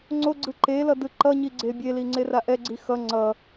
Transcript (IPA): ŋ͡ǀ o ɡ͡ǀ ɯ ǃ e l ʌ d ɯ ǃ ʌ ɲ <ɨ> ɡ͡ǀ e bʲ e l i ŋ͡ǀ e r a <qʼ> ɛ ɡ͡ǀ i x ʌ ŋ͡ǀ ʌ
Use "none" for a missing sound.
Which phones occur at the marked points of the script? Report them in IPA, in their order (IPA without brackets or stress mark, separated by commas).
i, ʔ